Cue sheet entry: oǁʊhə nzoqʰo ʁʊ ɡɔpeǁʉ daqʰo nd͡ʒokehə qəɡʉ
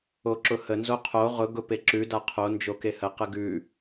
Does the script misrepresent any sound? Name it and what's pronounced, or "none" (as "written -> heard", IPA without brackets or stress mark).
ɔ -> ʊ